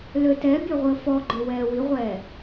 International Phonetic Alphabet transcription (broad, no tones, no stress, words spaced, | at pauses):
løtɛbʲø ʁʷəːfɔɡ͡ǃø wɛːwiʁʷɛː